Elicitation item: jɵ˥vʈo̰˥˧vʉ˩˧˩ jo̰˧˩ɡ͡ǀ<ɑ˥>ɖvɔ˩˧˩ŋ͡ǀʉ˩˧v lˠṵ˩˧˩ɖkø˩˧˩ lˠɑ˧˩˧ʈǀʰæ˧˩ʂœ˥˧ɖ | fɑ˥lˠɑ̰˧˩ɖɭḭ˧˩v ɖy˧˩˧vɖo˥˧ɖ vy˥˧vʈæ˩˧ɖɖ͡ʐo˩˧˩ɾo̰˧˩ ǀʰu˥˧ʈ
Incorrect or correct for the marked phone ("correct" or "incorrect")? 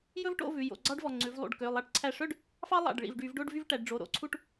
correct